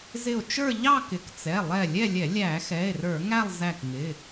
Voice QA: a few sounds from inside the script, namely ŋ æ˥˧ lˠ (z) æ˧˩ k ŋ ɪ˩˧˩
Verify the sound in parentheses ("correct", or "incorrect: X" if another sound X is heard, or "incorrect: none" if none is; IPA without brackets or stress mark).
correct